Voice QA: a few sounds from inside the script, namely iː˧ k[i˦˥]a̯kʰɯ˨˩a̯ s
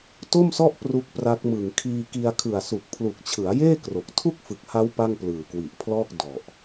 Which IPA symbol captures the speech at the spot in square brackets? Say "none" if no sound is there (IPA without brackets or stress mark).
i˧